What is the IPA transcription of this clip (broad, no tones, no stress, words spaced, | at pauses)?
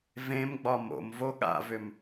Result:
vẽmɡ͡bɒ mo̰m voɠa̰vʏm